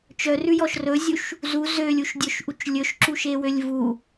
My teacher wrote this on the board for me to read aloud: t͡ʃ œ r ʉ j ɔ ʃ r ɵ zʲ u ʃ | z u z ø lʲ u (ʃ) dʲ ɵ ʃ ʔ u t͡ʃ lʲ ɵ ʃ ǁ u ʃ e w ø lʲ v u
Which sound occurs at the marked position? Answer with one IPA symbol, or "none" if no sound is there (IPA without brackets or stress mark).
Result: ʃ